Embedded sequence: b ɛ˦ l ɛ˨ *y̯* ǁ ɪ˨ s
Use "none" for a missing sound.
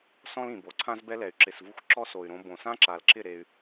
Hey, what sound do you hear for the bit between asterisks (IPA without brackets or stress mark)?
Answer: y̯